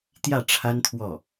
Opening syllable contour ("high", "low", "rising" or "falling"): falling